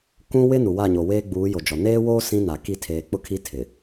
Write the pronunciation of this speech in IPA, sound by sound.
k ũ˦ w ɪ˦ n u˨ w a˦˨ ɲ o˨ w eː˦ ɡ͡b uː˨˦ j o˨ d͡ʒ ɔ˨ n eː˦ w oː˦ s ĩ˦ n a˨ k i˦˨ tʰ eː˨ k͡p ʊ˦ kʰ i˦ tʰ ɪ˨

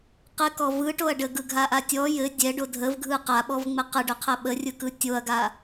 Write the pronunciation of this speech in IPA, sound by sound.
q ɘ k ɔ v ɯ ʈ o ɐ̯ ɖ ə ɡ ɯ ɡʱ a ʔ a tʲ ɔ j ɘ dʲ ɛ ɖ o dʱ ə v ɡʱ ɯ q a ɓ ɔ v ŋ͡m ɘ q ə ɖ ʏ qʰ ə ɓ ə rʲ ɯ k ɯ tʲ o ɐ̯ ɡ a

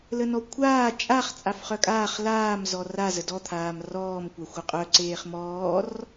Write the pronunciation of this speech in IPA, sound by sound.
l ə n ɔ kʷʰ aː t͡ʃʼ a χ t͡sʼ a f χ œ kʼ aː χ l aː m z ɔ r a z ə d ɔ t̪ʰ aː m r ɔː m kʷ a xʷ ə qʼ œ ǀ eː χ m ɔː r

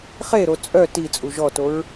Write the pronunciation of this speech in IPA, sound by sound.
χ e ɾ o t͡sʼ œ t i t͡sʼ u ʒ ɔ t o ɹ

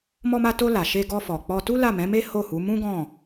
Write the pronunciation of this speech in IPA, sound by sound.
m ɔ˧ m a˧ t o˧ l a˨ ʃ e˧ ɡ ɔ˧ f ɔ˨ k͡p ɔ˧ t u˦ l a˦˨ m ɛ̃˨˦ m e˦ h o˦˨ h u˨˦ m ũ˦ ɡ ɔ̃˦˨

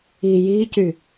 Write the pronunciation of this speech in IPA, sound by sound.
i j i c y

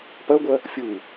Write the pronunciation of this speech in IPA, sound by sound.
p ɐ ɡʷ ɐ | fʲ u

